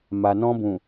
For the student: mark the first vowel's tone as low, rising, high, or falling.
low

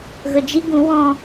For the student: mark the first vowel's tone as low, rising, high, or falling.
low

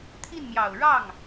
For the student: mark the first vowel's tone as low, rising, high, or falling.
falling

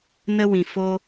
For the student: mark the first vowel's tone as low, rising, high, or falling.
high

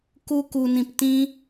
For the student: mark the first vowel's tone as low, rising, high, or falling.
high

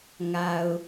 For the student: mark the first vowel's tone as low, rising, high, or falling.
low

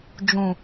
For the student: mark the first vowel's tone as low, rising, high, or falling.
low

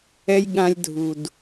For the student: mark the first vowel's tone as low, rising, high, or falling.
high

